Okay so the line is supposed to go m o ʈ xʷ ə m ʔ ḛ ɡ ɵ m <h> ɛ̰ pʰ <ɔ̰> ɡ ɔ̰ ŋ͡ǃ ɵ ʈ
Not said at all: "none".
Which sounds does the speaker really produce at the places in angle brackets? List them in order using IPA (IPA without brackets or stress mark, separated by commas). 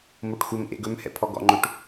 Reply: h, ɔ